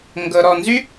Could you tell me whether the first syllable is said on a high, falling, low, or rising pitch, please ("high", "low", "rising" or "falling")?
low